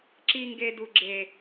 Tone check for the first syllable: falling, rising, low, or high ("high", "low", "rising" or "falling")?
high